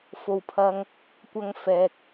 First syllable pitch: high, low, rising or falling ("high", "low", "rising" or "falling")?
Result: low